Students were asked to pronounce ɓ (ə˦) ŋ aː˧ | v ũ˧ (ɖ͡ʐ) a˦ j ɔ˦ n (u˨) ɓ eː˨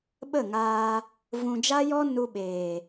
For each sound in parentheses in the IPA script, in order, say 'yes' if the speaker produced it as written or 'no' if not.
no, no, no

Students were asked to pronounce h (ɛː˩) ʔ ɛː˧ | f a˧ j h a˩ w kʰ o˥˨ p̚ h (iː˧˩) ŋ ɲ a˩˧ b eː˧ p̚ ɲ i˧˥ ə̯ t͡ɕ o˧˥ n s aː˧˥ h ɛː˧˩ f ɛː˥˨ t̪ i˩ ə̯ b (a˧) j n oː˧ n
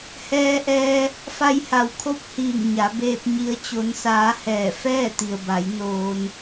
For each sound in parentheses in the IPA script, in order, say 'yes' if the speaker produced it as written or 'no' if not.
no, yes, no

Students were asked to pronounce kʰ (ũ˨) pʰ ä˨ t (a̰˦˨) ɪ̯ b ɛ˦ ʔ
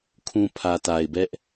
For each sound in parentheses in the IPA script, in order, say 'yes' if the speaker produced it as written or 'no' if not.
yes, no

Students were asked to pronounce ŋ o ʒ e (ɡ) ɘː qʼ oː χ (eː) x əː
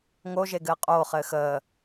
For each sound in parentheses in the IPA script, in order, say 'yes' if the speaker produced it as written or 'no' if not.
yes, no

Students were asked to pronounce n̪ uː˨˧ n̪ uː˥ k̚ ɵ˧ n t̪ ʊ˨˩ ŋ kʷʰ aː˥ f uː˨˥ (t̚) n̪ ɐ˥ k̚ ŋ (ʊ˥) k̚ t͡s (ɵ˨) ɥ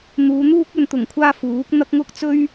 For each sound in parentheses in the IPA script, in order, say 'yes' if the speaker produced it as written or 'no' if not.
no, yes, no

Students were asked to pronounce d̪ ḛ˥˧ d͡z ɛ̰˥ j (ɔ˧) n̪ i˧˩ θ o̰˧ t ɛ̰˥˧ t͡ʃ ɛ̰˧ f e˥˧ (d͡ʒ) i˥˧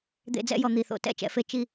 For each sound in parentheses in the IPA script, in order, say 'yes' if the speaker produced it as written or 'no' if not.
yes, no

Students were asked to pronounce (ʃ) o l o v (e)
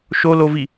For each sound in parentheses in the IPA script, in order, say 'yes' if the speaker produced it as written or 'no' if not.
yes, no

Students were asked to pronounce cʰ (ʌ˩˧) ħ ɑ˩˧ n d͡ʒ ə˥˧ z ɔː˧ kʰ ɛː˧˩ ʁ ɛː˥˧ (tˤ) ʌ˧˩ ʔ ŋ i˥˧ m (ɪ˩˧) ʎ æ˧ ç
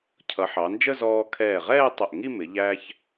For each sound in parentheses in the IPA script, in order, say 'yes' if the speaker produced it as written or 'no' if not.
yes, yes, yes

